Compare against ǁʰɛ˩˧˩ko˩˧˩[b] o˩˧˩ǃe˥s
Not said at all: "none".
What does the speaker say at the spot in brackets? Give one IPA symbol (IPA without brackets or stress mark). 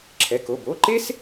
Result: b